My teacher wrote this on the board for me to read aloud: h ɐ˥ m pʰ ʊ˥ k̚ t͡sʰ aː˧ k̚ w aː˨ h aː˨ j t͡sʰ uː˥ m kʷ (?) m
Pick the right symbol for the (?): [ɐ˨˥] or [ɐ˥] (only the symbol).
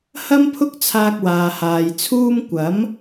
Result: ɐ˨˥